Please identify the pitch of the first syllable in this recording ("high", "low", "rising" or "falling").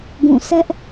falling